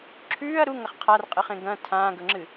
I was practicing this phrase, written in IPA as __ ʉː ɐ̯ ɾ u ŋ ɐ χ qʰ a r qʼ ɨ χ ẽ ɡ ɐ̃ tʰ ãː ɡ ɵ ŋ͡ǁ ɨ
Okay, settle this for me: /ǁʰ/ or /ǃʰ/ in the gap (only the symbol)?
ǁʰ